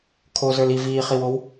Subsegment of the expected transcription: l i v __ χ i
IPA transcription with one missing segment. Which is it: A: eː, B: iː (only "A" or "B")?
B